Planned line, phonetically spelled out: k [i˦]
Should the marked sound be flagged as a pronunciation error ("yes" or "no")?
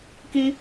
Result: no